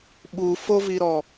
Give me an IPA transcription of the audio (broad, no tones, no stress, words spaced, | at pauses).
ɓufoviɾɔ